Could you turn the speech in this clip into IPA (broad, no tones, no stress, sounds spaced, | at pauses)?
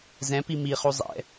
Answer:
z ɛ̃ p i m i χ u zˤ ɛ̰